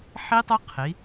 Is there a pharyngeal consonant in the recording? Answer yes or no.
yes